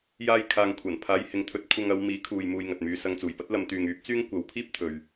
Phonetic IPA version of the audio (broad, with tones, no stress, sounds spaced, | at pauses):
j aː˧ j kʰ aː˨ ŋ kʷʰ ɐ˨˩ n pʰ aː˨˧ j h ɪ˨˧ ŋ t̪ʰ ɵ˨˥ t̚ kʷʰ ɐ˧ ŋ ɐ˨˧ w m iː˨˥ kʰ uː˨ j m uː˧ j ŋ ɐ˨ t̚ m yː˧ s ɐ˧ ŋ t͡s uː˨˩ j p ɐ˥ t̚ l ɐ˨˧ m t̪ yː˨ ŋ yː˨˥ p̚ t͡s yː˥ ŋ kʷ ɐ˨˥ w pʰ iː˥ p̚ t̪ʰ ɵ˨ ɥ